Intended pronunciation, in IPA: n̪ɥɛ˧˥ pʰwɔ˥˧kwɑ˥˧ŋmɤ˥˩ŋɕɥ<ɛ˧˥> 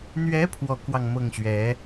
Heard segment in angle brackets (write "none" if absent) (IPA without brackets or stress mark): ɛ˧˥